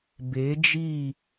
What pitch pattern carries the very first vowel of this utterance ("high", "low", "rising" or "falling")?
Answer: rising